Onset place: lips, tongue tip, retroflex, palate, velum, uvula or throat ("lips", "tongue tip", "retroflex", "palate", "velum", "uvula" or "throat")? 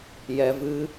palate